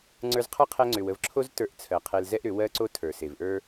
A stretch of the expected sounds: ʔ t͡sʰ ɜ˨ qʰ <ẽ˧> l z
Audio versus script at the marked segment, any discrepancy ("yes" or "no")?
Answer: yes